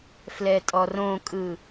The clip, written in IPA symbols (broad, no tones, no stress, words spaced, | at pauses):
flɛtʼɔrõkʼɯ